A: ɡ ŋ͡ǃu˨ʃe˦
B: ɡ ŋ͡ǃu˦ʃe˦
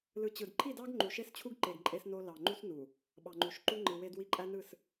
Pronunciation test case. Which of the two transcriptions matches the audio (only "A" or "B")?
A